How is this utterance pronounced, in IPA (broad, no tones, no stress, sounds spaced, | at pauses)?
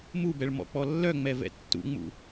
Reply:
m u b ɛ ɭ m ɔ̰ k͡p ɔ lː œ ŋ͡m ɛ v ɛ̰ tː ṵ ŋ͡m ṵ